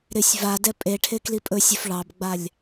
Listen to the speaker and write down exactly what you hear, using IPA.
ɾ ɪ sʲ v a d ɛ pʼ e ʈʰ e k l i pʼ ɵ sʲ ɵ f ɭ ɑ b ɡ͡b a lʲ

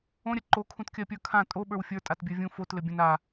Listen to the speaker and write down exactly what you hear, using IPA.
õ ɾʲ ə ǃ o kʰ ũ t kʲ ɜ pʲ ə˞ kʰ ã tʼ o ɓ ə˞ w fʲ ə˞ tʼ a t bʲ ə˞ vʲ ũ f o t l ɘ bʲ ə̃ n a

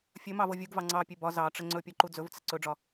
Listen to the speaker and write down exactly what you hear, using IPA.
fʲ ɵ m ɑ v ɤ vʲ u ɡ v ɑ ŋ͡ǀ ɑ pʲ e b ɒ z ɑ ʈ͡ʂ ə ŋ͡ǀ ɵ pʲ ɒ ǃ u d͡z ɵ v t͡s ə ǀ ɵ ɖ͡ʐ ɒ

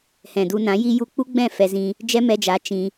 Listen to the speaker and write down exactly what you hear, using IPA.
h ɛ̃˨ d u˧ n ã˨˦ j i˧ j u˧ k͡p u˦ ɡ͡b ɛ̃˦˨ f ɛ˧ z ĩ˧ | d͡ʒ ɛ˦ m ɛ˧ d͡ʒ a˨˦ t͡ʃ ĩ˧

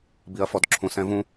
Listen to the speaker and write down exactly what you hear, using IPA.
b i ɐ̯ f ɔ d ǁʰ ũ s ɛ̃ v ũ

